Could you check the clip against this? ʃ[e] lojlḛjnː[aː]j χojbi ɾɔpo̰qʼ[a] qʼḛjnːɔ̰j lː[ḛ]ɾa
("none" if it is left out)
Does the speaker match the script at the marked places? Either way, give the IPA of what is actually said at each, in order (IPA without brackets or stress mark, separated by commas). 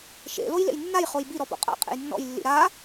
ḛ, a, a̰, ḭ